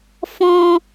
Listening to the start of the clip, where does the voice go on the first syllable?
high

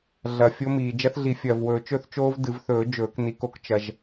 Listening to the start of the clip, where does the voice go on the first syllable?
low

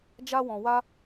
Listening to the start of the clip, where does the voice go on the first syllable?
high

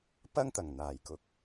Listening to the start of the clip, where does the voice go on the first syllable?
high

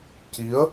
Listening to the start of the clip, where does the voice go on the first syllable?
rising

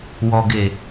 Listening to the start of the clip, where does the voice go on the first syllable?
low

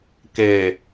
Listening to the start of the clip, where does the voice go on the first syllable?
low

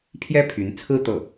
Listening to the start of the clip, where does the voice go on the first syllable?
high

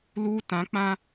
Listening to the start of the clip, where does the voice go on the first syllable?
high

